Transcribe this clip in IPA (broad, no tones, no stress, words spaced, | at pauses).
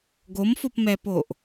ɡomfopmɛpoʔ